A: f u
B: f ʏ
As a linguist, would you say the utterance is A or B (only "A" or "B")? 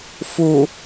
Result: A